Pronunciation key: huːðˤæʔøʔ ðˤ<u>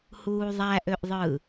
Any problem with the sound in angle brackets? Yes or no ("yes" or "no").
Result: yes